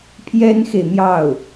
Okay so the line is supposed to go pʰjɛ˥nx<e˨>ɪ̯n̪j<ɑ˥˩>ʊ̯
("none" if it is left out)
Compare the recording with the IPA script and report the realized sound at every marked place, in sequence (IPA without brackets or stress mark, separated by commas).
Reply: e˨, ɑ˥˩